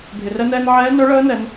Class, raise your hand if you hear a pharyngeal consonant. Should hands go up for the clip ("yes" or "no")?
yes